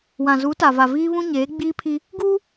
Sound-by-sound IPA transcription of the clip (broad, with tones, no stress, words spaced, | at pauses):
wã˨zu˨˦ta˨va˨ viː˦βũ˦ɲeː˨˦ɡ͡biː˦ pʰi˦ | ɡuː˦